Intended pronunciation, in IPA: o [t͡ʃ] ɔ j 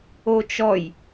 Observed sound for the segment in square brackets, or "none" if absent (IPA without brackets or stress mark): t͡ʃ